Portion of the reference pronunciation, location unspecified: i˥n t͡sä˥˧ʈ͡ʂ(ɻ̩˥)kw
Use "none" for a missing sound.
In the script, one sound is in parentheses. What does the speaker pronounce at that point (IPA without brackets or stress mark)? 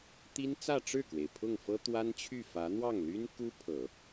ɻ̩˥˩